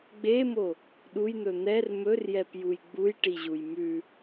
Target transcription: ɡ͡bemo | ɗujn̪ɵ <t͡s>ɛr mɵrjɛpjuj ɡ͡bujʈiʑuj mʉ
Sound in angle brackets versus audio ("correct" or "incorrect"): incorrect